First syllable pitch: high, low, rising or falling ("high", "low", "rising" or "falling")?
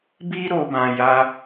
high